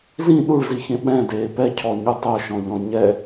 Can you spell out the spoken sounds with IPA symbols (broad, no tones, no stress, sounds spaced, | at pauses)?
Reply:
z ĩ ɗ u ɭ z i ç ẽ ɓ ɛ̃ d eː p ɛ cʰ ɔ ɲ u tˤ o ʃ ɔ̃ ʎ ɔ̃ ɲ ɛ